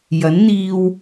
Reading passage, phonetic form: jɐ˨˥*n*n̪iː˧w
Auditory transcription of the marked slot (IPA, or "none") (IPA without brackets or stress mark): n